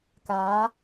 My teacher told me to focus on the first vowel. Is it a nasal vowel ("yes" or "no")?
no